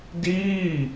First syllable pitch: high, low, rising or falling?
falling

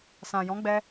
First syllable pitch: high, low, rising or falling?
low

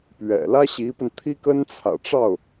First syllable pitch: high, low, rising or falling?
low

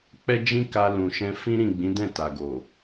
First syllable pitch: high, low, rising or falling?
high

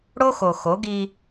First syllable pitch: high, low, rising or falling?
high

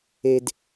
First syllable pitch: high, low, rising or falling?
high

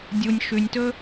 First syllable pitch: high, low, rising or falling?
low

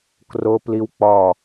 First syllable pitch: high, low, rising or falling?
high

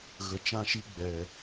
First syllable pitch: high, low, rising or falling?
low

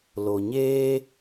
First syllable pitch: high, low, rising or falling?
low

